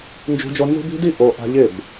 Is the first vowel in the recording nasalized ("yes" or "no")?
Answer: no